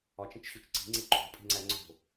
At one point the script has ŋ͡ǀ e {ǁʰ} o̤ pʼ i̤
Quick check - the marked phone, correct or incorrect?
incorrect